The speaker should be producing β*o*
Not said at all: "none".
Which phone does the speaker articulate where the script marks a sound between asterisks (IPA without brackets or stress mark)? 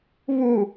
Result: u